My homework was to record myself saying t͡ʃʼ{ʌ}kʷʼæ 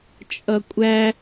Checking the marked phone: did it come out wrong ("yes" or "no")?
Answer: no